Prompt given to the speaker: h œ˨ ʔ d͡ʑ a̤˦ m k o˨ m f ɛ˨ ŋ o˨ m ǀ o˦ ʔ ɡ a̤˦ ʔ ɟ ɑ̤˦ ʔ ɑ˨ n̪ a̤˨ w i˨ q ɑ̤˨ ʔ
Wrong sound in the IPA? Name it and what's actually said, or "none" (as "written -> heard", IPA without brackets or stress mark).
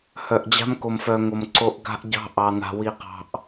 ɛ˨ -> œ˨